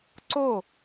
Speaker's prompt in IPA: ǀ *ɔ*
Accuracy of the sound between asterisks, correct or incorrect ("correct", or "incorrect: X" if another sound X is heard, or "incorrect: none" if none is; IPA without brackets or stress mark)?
incorrect: o